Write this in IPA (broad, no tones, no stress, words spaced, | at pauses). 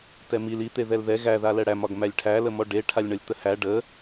tɛmil i t̪eðɛlðɛ ɣæ ðalɛɽæmɒɡ mælʲʈʰæləmɔ ɖeʈʰalʲɳɒlʲ t̪əhæ ɖə